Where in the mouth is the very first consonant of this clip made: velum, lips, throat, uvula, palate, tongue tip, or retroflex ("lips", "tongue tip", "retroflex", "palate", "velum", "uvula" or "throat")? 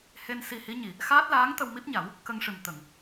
throat